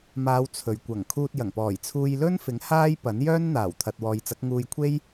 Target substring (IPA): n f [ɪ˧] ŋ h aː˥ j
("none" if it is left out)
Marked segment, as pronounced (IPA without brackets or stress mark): ɪ˨˥